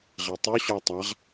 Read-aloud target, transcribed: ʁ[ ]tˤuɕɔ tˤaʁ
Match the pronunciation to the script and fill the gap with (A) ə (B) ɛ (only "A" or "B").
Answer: B